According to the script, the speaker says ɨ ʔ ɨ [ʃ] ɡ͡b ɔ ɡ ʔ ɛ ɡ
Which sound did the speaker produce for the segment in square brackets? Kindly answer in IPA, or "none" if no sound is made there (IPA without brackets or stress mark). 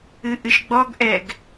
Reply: ʃ